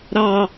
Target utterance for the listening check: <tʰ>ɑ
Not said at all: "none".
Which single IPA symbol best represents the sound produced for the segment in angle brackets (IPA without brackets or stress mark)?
ɾ